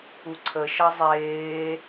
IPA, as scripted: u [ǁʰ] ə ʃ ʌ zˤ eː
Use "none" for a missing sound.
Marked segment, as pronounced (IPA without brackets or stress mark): ǀʰ